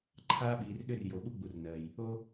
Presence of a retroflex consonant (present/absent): absent